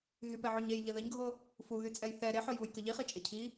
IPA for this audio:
ɦ y p ɛ ʕ u ɲ e j ʎ ə ð ə ɲ ɡʱ o | f u ɣ y t͡sʼ ɛ j θ ɛ ɾ e ħ o j β u j k ə ʎ i χ i t͡ʃʼ e cʰ i

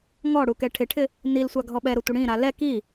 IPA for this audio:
ŋ ɔ ɽ u k ɛ ʈʰ ɪ ʈʰ ɪ | n i l sʷ a ɡʱ ɔ ɓ ɛ ɾ ʊ tʷ ɪ ɽ ĩ ɾ a l ɛ k i

